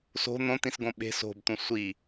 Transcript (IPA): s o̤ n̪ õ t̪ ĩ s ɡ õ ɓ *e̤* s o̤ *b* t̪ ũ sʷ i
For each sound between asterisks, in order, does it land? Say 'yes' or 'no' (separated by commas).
yes, yes